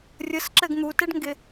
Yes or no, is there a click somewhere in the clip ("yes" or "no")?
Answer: yes